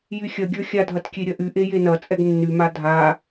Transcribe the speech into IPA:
jyxʲɐɡʲə˞ xʲadʱɐt kʲeɾʲɐʔyʔe jenɐt͡sʼɛɡ nːyma dʱa

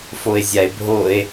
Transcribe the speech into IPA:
foe̯zʲae̯bʱoe̯

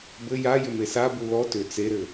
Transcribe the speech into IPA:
bɘ ja jʏmesabu lɔ tʏ t͡seɾɘ

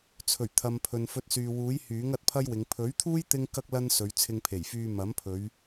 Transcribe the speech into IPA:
t͡sʰɵ˨˩ɥt̪ʰɐ˨mpʰɵ˨n fɵ˧t̚syː˨wuː˨˥j hyː˨˥ŋɐ˨˥t̚pʰɐ˥jwɪ˨˧ŋ pʰɵ˨˥ɥt̪ʰuː˥j t̪ɪ˥ŋkɐ˥k̚ lɐ˥nsɵ˨˧ɥ t͡sʰɪ˧ŋpʰe˨˩jfyː˧ mɐ˨˥mpʰɵ˨˧ɥ

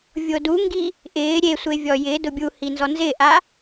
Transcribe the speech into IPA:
vʲoduŋɡi | ʔɪː ɾʲesʷe vʲɔjɪːdʊ bʲuhi nzɔnzɪːʔa

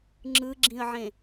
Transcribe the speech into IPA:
ŋ͡ǁɯɡ͡ǁĩə̯ʕẽ

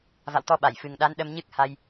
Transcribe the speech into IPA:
va̰˧˨wt̪ɔ˧ɓa˧˩j fɨ˨˩ŋɗa˨˦n ɗə˧mɲɨ˦˥k̚ ha˧j

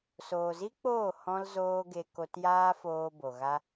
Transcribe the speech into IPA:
soː˨zi˦k͡poː˦˨ hɔ̃˦lzoː˦ɡe˧ ko˧tjaː˦foː˧ bo˨ɣa˦

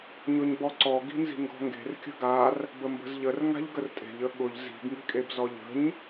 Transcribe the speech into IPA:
ɲʊɲbɔǀɔ ɡi̤nzi̤ŋɡɔ̤ŋɡe̤r kʲə̤ɡar | bəmbə̤zʎər ŋa̤ʎɡərtʼe̤ʎ əɠʊʎ zi̤ɡ ŋi̤kʼebzɔʎə̤ɲ

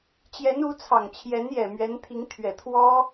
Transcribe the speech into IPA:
t͡ɕjɛ˧˥nu˧˥t͡sʰɑ˨˩ŋt͡ɕʰjɛ˧˥n jɛ˨˩mɥɛ˧˥nt̪ʰi˧˥ŋ t̪ʰɥɛ˨˩t̪ʰwɔ˥

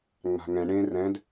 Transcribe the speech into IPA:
ŋ͡ma̤ŋɛ̃ ɳẽ rɛ̃d

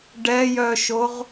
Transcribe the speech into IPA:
ɖɛjœʃoʁ

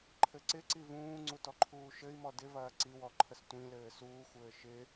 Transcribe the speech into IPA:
ǃʰɘǀɪǀi vũːŋ͡ǀu tɔǃʰuːʃɘi̯mɔ dɪvɐː ǀiwɔ ǃʰəstʷĩlɘː suːxʷɘː ʃɪ

